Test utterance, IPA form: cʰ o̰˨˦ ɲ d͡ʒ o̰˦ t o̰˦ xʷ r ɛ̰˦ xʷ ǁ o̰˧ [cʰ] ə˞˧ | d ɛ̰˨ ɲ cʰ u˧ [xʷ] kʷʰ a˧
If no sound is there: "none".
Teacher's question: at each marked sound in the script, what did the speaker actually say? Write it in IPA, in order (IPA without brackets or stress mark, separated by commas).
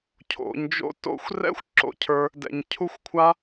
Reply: cʰ, xʷ